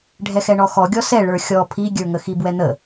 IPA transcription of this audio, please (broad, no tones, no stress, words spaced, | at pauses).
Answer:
ɖʱɛxɛɳɔxɔ ɡʲɔsɛ ɭə˞xʲɔ pʰiɡʲə˞ ŋəxibwɛn̪ə